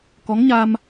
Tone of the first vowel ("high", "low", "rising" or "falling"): rising